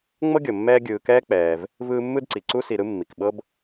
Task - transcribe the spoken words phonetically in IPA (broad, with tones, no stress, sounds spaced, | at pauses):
ŋ͡m ɤ˥ ɡʲ ɤ˩ mː ɛː˦ ɡʲ ɯː˨ k ɛː˥ k͡p ɛː˩ v | v ɯː˦ mː ɯ˥ d ǀ i˩ ǀ u˦ s i˨ ɾ ɯ˥ mː i˩ k ɓ ɤ˥ b